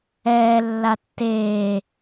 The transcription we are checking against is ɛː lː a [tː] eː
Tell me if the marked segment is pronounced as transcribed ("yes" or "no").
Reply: yes